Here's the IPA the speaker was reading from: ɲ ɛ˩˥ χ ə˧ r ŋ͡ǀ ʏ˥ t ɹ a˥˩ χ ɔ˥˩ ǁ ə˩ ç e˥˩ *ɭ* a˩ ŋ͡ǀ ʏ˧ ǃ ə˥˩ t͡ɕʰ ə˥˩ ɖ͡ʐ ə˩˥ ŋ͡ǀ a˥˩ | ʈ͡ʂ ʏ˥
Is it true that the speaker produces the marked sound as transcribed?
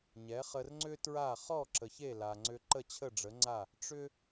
no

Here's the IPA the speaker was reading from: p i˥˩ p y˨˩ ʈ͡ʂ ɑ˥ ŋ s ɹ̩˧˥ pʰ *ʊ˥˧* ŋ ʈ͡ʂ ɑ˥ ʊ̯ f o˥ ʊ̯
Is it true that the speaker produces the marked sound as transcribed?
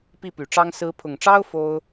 no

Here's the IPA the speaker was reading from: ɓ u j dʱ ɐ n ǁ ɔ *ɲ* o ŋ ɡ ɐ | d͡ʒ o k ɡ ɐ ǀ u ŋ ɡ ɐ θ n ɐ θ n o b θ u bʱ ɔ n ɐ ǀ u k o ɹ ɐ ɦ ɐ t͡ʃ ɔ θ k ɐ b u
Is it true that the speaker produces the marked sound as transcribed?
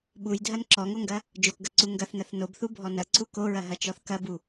no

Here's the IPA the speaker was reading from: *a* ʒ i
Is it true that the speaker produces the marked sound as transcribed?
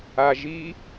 yes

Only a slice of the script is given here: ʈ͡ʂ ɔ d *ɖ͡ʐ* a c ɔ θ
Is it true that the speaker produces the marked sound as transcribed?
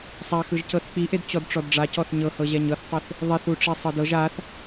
yes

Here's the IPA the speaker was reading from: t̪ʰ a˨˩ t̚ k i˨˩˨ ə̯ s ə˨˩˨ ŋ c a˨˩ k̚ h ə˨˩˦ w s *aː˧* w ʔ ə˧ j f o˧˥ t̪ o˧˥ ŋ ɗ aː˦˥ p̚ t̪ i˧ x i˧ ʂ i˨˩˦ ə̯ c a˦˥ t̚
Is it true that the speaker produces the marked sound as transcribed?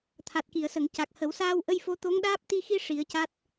yes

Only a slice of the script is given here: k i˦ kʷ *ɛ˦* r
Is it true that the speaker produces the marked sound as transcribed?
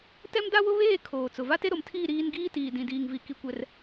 yes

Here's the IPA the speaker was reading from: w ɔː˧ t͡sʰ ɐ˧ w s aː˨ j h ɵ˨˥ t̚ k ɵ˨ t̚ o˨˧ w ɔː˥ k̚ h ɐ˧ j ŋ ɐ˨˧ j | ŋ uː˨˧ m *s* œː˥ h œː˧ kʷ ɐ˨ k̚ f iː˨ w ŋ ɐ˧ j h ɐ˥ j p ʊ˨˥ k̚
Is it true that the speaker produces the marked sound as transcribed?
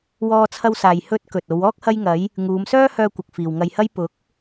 yes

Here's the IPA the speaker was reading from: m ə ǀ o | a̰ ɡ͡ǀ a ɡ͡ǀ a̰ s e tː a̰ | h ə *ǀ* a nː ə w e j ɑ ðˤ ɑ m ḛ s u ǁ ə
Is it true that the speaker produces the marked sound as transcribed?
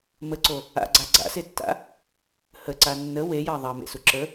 yes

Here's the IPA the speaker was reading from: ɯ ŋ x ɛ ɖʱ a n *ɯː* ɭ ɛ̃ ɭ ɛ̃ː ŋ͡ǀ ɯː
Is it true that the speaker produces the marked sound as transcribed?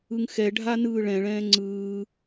yes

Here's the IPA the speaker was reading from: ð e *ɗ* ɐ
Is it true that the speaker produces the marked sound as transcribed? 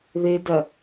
no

